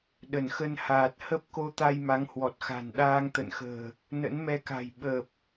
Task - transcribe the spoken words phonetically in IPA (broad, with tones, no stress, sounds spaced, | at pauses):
ɗ ə˧˩ n x ə˧ n h aː˨˩ t̚ h ə˦˥ p̚ k o˧ t̪ a˧ j m a˨˦ ŋ h w ɔ˨˩ t̚ x a̤˨˩ n ɗ aː˧ ŋ t̪ ə̰˧˨ n x ə̤ː˨˩ | n ə̰˧˥ n m ɛ˧ k a̤˨˩ j ɓ əː˨˩ p̚